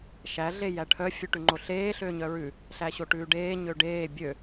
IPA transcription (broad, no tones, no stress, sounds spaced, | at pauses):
ʃ æ ɮ e j æ ʈʰ œ fʲ ʉ ʈ ʉ ŋ͡ǃ o ɬ eː ɬ ø ɲ œ ɹ ʉ | ɬ æ ɕ o ʈ ʉː ɖ eː ɲ ø ɖ eː bʲ ø